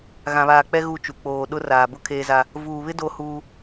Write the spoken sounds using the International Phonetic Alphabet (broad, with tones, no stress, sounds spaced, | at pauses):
ɣ ã˨ β aː˨ k͡p ɛ˦ ɣ u˦ t͡ʃ u˨ k͡p oː˨ ɗ ʊ˦ r aː˨ b ʊ˦ kʰ eː˦ z a˦ | v uː˨ β ɪ˦ d o˦ h uː˦